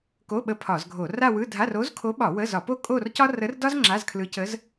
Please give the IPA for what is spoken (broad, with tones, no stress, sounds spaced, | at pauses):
k o˧˥˧ ɓ ə˧˥ pʰ ɒ˧˩˧ z ɡʱ o˧˩˧ r a˥˧ w ɯ˧˥˧ dʱ a˧˥˧ r o˧˥ z kʰ o˧˥ ɓ ɒ˧˩˧ w ə˧˥˧ z ɒ˧˩˧ p o˥˧ kʼ o˥˧ r c ɒ˥ r ə˧˥ r d ɒ˥ z ŋ͡ǁ a˧˥˧ z kʰ l ɯ˧˥ c ə˧˥ z